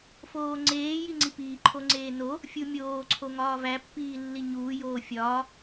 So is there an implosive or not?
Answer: no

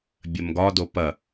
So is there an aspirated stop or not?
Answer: no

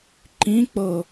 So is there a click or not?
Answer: yes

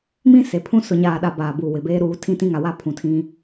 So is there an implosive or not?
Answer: yes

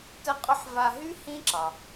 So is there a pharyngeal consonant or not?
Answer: yes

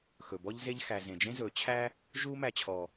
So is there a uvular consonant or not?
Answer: no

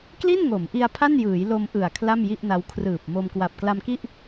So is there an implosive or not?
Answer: no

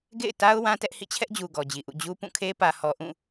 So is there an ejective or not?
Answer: no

